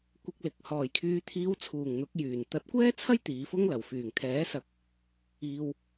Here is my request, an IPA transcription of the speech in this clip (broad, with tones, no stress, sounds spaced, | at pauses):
kʷ ɪ˧ k̚ l ɪ˨ k̚ h ɔː˨˩ j kʰ yː˨ t̪ʰ iː˨˧ w t͡sʰ uː˨˩ ŋ n̪ ʊ˨˥ k̚ j yː˨˩ n t̪ ɐ˨˥ t̚ kʷ ɛː˥ t͡sʰ ɐ˥ j t̪ iː˨˧ f ʊ˥ ŋ l ɐ˨˩ w f yː˨˩ ŋ t̪ʰ ɛː˨˥ s ɐ˨˥ k̚ | iː˨ w